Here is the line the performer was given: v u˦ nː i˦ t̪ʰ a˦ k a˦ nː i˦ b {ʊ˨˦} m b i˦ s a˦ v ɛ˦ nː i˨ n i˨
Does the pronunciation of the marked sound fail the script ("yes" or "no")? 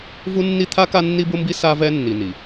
yes